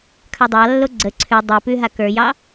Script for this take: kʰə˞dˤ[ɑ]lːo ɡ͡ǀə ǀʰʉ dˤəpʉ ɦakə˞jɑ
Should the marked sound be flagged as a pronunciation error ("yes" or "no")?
no